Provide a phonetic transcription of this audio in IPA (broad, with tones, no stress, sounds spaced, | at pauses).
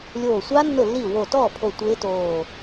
lʲ oː˧˩ sʷ a˦˥ nː ʊ˥˩ lː i˥˩ w o˧˩ t ɔː˥˩ pʰ o˧˩ tʷ ɪː˦˥ t oː˧˩